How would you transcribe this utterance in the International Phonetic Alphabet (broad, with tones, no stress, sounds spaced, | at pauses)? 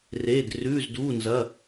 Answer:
r eː˧˥˧ d r ʉː˧˥˧ z d uː˧˥˧ n z ɐ˧˥˧